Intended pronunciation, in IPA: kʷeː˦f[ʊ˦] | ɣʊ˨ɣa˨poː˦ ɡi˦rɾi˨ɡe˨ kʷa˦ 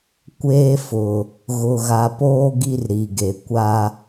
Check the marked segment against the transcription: incorrect: ʊ˨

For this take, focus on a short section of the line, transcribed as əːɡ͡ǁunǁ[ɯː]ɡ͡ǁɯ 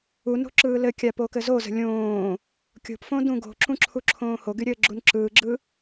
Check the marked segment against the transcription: correct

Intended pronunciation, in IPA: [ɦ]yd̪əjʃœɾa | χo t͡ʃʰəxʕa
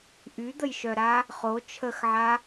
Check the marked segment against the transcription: incorrect: ʔ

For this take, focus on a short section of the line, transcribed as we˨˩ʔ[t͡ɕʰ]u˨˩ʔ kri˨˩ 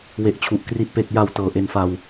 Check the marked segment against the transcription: correct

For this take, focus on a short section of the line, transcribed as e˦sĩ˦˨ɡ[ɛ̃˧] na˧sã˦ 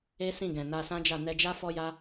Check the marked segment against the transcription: incorrect: ɛ̃˨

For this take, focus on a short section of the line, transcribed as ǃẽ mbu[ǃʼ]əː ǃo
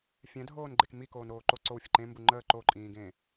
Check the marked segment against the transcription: incorrect: ŋ͡ǃ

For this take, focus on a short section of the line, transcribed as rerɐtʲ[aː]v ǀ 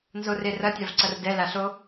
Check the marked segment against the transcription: incorrect: a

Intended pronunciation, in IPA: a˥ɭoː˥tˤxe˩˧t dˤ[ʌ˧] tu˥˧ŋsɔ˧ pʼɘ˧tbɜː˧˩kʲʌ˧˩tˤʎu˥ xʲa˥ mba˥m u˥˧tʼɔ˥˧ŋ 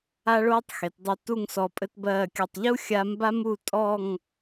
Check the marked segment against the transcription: correct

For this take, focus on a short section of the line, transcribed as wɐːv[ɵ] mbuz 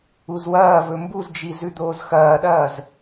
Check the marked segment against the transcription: correct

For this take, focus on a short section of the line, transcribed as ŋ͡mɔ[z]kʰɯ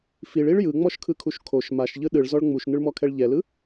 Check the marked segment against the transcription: incorrect: ʃ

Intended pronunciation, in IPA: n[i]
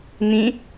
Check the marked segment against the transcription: incorrect: ĩ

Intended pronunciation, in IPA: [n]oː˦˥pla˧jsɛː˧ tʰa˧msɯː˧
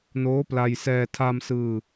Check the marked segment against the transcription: correct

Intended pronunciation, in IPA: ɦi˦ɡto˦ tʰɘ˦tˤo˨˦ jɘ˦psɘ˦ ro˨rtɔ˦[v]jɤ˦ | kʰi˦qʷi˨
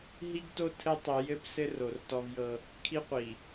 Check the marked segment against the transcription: correct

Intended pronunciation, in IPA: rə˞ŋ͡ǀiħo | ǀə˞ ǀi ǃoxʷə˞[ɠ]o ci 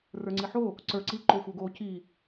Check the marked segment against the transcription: incorrect: ɡ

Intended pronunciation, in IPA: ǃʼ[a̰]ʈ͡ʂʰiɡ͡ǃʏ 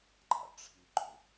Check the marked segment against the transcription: correct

